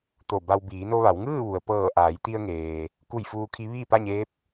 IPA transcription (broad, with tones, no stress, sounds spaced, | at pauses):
t̪ o˧˩ b a˧ w b iː˩˧ n o˧ ʋ a˩˧ w ŋ ɯː˥˨ ʋ u˩ ə̯ p ɤː˧˩ ʔ aː˩˧ j t̪ i˧ ə̯ ŋ eː˩ | k u˧˩ j f uː˧ kʰ i˧˥ ʋ iː˥˨ p a˥˨ ɲ eː˧˥ p̚